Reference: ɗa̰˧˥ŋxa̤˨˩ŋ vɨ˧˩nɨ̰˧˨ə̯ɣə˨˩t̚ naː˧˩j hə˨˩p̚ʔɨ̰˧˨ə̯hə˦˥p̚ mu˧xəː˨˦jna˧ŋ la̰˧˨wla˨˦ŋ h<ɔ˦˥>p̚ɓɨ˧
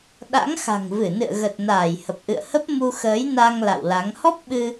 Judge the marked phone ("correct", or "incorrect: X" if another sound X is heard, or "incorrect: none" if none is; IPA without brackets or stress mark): correct